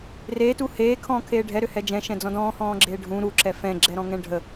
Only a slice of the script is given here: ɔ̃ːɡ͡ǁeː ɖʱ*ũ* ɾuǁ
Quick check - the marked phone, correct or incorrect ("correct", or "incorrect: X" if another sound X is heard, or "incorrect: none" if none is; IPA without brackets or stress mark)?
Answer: correct